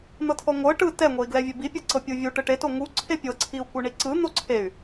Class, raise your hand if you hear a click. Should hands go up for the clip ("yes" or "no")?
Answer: yes